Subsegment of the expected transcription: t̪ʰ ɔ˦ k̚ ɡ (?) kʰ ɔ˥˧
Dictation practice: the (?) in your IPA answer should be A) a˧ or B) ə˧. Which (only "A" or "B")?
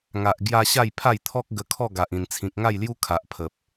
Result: B